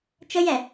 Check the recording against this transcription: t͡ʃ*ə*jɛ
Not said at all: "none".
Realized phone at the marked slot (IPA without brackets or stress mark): ə